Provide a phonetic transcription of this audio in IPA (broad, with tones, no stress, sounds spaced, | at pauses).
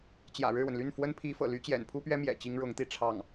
t͡ɕ j ä̰˨˩ ɻ ɻ̩˥˩ w ə˩ n l y˥˩ n f w ə˥ n pʰ i˧˥ f ɤ̰˨˩ l y˥ t͡ɕ j ɛ̰˨˩ n pʰ u˥ p ɥ ɛ˥ m j ɛ̰˨˩ t͡ɕ i˥ ŋ ɻ ʊ˧˥ ŋ t̪ i˥˧ ʈ͡ʂʰ ɑ˥˩ ŋ